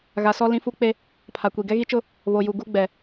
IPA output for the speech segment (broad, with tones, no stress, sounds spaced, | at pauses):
ɣ a˨ s ɔ˦ l ĩ˦ f u˦ k͡p e˦ | pʰ a˨ kʷ i˨ ɡ ɛ˦ ɣ i˦ t͡ʃ ʊ˦ | β o˨ j u˨ ɡ u˦ ɡ͡b ɛ˨